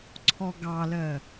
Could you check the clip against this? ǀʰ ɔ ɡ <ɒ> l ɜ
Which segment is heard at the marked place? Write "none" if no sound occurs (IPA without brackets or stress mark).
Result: ɑ